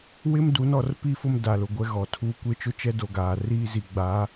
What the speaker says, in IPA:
w ɪ˦ m d u˨˦ n ɔ˨ r p i˦˨ f ʊ˦ m d a˨ l ʊ˨ ɡʷ ɛ˦ ɣ ɔ˨ tʰ uː˦ kʷ e˦˨ t͡ʃ ʊ˦ t͡ʃ ɛ˦ d o˦ ɡ aː˨ r iː˦ z i˨ ɡ͡b a˨˦

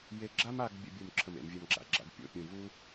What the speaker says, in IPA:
j e˧ ɡ͡ǁ a˥ m a˥˧ ɡ bʲ ə̰˧ bʲ u˧˩ m ǁʰ ə˧˩ m ḛ˩˧ m vʲ ə˞˧ m ɡ͡ǁ a̰˧˩ ɡ͡ǁ a̰˧ ɡ pʲ o̰˧˩ pʲ ũ˧˩ v u˥

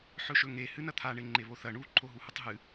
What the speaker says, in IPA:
ħ ɵ ʃ ɵ ŋ e h ɨ n ɐ t̪ʰ a ɳ e ŋ͡ǃ e β o θ ɐ ɳ u ǃʰ o ɦ u h u tˤ ɦ ɨ

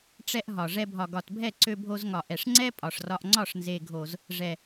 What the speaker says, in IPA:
ʈ͡ʂ ɛ˦ ʔ ɦ ɒ˨ ʐ ɛ˧ bʱ ɒ˨ ɡ ɒ˨ t bʱ ɛ˦˨ ǀ ø˧ bʱ o˧ z ŋ ɒ˨ ʔ ɛ˨ ʂ ŋ͡ǀ ɛ˦ pʼ ɒ˨ ʂ r ɒ˧ ʔ ŋ͡ǀ ɒ˦˨ ʂ n z e˨ ɡʱ o˨ z | ʐ ɛ˨

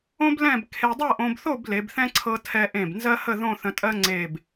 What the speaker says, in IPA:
õ˥ b l ɛ̃˥˧ b kʰ e˧ dˤ ɤ˥˧ ʔ õ˧ b θ o˥˧ b l e˩˧ b θ ɛ̃˥ ǀʰ ɤ˧ tʰ ɛ˧ ʔ ẽ˧˩ b n z ɜ˥ h ə˥˧ ð õ˥˧ θ ə̃˧ tʼ ɜ˥ ŋ͡ǀ e˧˩ b

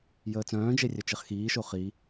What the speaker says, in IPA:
j əː t͡s œ̃ː d͡ʒ e rʲ œ t͡ʃ e χ x iː ʃ o χ i

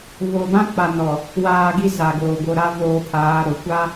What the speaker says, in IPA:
β o˨ b ã˦ k͡p a˨ n ɔ˨ | w aː˨ ɡ i˦ z a˨ ɡ oː˨ ɡ o˨ ɾ a˦ v oː˦ pʰ aː˨˦ ɾ o˨ kʷ a˦

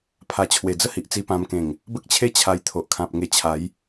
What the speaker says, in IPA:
pʰ a˨˩ t͡ɕʰ w e˨˩ d͡z ə˥˧ h i˨ ʔ t͡s i˧ p ã˧ m k ẽ˨˩ ŋ | b ə˦ k̚ t͡ɕʰ e˥˧ t͡ɕʰ a˧ j t̪ʰ o˨ ʔ kʰ ã˨ p̚ ŋ e˧ t͡ɕʰ a˨˦ j

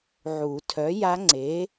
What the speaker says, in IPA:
ʕ u˨˩˦ tʰ œ˨˥ j a˦˥ ŋ͡ǀ e˨˥

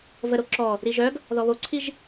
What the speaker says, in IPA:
v ə ɾ o ǁ ɔ | ɾ i ʒ œ ɡ | ð ɔ β o ǀʰ i ʒ

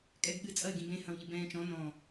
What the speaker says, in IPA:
kʼ ɛ ɡ ɠ ɨ t͡sʼ ɐ ɪ̯ ɡ ĩ b ẽ h ɐ̃ w ʎ ɨ b ɛ̃ː t͡ʃ ɔ̃ n ɔ̃

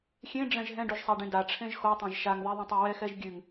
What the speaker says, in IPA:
xʲ ẽ ɖ͡ʐ ɛ̃ ʒ ɦ ɛ̃ ɖ u ʒ sˤ a ɖ ẽ d a ʈ͡ʂʰ ẽ ʒ x o tˤ ẽ ʒ ʃ a ŋ ð ɛ ðˤ ɛ̃ tˤ ø w ɛ x ɛ ʒ ɡʲ ʉ ŋ

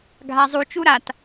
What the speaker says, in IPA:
ɡʱ a zˤ u t͡ʃ u ɾ a t

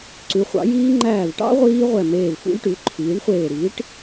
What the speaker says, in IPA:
ǀ ʉ˩˥ χʷ ɑ̰˩˥ j iː˦˥ ŋ͡ǃ æː˧˩ v ʈ ɑ̰˦˥ ʁʷ iː˦˥ ʁʷ ɛ˧˩ m eː˧˩ v f ṵ˦˥ lʲ ʈ ʉ˩˥ ǃʰ iː˩˥ ɳ χʷ eː˧˩ ɾ iː˩˥ ʈ

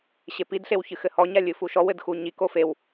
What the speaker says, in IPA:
ɕ e p i d ɬ e w ç ɨ x ɘ h ɔ ɲ a lʲ ɨ f u ʃ ɔ w ɘ d x u ɲ i k o f e w

